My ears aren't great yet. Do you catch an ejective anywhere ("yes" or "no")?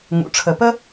no